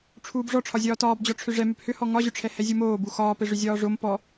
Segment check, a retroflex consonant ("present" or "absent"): present